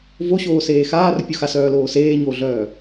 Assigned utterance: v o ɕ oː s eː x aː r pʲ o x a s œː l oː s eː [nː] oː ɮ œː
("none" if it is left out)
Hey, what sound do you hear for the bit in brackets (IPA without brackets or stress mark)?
ɲ